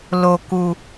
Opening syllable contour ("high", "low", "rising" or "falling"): low